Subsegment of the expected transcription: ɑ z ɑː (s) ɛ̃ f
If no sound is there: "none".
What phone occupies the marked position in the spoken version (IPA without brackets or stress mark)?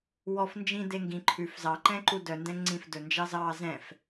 z